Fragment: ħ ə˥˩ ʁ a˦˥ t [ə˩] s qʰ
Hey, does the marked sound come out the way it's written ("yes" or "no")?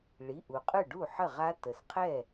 yes